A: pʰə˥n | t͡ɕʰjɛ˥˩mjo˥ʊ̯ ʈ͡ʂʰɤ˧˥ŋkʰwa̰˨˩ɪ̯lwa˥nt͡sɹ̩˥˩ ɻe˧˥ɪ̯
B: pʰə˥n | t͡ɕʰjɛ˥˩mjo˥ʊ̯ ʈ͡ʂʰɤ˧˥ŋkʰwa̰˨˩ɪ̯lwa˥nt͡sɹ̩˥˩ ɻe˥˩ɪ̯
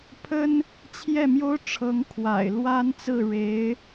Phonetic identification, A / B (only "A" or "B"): A